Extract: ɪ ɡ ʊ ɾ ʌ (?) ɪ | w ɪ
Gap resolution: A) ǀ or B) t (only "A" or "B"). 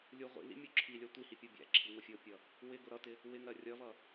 B